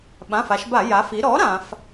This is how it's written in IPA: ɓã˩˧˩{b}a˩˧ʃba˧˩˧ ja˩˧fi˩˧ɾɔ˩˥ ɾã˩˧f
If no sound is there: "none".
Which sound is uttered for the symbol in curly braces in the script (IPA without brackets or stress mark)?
f